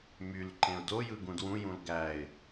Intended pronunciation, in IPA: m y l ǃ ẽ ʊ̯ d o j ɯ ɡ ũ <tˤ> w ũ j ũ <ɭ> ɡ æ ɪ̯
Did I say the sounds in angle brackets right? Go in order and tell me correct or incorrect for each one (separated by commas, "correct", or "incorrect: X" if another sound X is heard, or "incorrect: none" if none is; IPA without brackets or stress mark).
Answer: incorrect: d, incorrect: l